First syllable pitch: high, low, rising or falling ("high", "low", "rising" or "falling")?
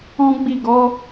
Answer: high